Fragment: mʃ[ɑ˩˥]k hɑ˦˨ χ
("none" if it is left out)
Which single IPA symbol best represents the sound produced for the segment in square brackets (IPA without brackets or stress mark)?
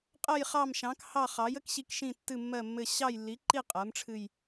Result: ɑ̃˩˥